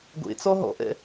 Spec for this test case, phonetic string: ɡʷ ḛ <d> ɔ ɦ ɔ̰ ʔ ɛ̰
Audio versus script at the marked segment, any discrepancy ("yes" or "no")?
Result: yes